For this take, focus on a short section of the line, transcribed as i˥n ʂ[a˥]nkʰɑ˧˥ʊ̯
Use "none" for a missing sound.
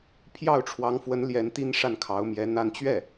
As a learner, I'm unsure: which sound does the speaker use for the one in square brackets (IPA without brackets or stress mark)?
a˥˩